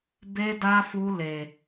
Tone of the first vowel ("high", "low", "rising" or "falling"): high